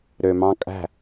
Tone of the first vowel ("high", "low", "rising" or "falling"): low